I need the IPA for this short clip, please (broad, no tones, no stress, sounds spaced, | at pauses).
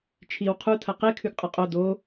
t͡ʃʰ i w qʰ u tʰ ɐ q e kʰ ʉ ɡ qʼ ɐ qʼ o d o